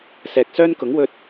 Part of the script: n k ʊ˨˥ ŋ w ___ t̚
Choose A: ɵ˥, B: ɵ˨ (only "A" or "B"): B